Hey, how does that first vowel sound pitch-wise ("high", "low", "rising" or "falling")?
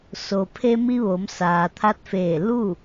low